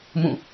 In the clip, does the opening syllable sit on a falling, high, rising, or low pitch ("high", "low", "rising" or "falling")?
falling